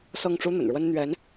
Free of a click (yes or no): yes